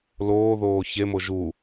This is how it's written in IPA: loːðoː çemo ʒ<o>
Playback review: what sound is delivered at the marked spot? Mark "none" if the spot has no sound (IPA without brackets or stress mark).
u